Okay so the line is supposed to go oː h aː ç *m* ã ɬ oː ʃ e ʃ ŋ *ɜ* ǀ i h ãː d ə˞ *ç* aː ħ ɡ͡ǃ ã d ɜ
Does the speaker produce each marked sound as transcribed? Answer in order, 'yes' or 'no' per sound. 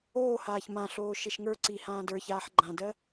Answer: yes, no, yes

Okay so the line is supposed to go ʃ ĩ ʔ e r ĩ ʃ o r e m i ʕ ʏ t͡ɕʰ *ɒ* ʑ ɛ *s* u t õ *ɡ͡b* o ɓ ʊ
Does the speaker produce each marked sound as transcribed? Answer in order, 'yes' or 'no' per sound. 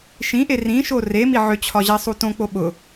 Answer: yes, no, no

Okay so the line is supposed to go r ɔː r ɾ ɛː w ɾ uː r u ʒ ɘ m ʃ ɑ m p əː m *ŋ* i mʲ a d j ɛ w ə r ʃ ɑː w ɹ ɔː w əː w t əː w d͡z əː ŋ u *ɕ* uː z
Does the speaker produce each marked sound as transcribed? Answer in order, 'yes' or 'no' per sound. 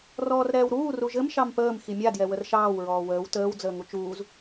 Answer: no, no

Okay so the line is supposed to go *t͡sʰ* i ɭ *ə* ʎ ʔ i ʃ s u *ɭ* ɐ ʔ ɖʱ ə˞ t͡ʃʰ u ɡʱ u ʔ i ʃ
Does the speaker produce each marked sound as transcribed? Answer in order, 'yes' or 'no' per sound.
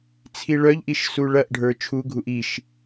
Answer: yes, no, yes

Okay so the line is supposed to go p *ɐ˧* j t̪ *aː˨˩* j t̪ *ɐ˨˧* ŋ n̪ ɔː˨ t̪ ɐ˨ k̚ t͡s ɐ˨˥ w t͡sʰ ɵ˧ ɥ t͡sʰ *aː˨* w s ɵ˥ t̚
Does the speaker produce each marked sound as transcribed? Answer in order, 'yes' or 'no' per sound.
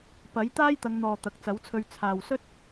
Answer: no, no, yes, yes

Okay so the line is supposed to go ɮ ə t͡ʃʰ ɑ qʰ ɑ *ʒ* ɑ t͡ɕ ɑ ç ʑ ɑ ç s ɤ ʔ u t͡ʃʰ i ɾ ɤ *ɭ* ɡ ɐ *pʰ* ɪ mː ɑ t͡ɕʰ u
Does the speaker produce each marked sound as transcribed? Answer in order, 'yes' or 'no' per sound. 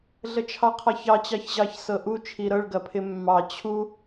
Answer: no, yes, yes

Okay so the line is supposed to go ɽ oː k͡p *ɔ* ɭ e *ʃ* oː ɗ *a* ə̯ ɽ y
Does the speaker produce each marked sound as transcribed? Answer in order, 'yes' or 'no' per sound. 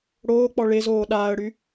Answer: yes, no, no

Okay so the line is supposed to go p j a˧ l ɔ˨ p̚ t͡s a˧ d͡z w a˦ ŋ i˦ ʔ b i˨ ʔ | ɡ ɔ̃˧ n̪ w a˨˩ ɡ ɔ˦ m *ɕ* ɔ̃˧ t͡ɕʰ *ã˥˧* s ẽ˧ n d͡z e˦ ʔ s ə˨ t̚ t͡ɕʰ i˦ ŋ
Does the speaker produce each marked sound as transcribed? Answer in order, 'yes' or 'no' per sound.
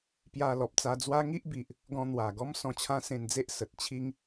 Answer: no, no

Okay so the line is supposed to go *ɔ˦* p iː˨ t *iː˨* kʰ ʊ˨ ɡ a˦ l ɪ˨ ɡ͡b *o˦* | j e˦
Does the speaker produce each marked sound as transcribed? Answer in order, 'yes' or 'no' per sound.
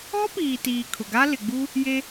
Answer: yes, yes, no

